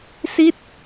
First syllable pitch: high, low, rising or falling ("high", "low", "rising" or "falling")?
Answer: falling